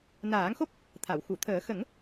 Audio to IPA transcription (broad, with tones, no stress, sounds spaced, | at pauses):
n aː˨˩˦ ŋ x o˦˥ p̚ | t̪ʰ a˨˩˨ w x u˨˩˨ t̪ʰ əː˨˩˦ x ə˨˩˦ ŋ